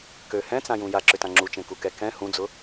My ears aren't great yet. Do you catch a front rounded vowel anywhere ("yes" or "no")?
yes